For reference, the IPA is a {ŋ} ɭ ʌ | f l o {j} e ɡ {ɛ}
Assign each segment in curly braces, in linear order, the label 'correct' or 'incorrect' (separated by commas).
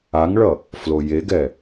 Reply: correct, correct, correct